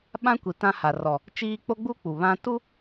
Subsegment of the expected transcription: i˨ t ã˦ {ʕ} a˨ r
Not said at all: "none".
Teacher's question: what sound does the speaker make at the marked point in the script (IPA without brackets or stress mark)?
h